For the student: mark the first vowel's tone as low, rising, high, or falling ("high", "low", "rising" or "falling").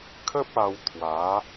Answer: high